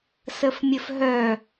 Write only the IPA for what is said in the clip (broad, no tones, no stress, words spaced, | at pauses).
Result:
səfmʲəfɦœ